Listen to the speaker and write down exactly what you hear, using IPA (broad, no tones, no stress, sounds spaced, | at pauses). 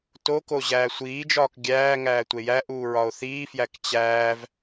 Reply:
t o k o ʑ æː sʷ iː d͡ʒ ɒː k ɡʲ æː ŋ æː tʷ e j æ ʔ uː ɹ ɒ o̯ θ iː f j æ k t͡ɕ æː v